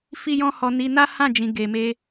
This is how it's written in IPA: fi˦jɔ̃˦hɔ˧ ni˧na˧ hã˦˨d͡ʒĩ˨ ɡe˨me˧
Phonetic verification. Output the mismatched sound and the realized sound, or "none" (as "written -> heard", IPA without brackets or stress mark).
a˧ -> a˦